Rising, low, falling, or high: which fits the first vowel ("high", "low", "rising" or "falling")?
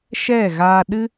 falling